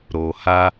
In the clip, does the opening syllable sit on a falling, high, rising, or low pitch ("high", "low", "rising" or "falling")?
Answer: low